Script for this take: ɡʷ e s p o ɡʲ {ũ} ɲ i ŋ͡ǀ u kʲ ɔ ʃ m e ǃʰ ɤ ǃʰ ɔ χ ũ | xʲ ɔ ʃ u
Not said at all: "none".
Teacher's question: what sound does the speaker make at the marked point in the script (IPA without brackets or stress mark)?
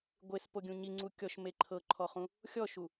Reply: ũ